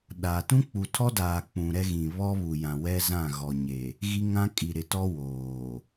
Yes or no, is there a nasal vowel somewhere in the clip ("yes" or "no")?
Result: yes